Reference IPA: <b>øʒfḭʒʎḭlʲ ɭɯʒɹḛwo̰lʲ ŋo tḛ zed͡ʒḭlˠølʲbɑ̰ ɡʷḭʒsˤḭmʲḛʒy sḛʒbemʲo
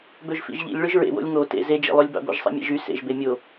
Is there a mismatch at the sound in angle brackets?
no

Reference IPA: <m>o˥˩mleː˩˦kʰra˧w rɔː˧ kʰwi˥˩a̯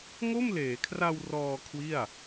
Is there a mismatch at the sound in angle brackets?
yes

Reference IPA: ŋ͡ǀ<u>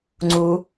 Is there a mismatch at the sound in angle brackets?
no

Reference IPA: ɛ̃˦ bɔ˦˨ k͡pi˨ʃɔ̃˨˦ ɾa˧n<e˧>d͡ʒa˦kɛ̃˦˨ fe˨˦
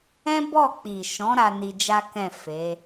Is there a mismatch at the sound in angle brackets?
yes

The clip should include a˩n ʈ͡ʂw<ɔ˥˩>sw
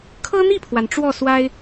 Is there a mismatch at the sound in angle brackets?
no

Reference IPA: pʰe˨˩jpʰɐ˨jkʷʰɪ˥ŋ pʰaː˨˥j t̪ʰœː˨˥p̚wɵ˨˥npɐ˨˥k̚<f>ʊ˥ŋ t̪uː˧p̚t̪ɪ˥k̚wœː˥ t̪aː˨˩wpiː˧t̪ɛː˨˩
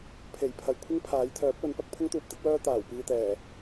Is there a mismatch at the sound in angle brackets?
yes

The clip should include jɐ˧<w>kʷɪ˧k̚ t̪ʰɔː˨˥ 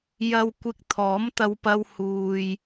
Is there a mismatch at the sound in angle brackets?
no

